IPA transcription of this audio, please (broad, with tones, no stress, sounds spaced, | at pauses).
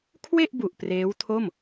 kʰ w e˥˩ ʔ b u˨˩ ʔ p r eː˦˥ w tʰ o˥˩ m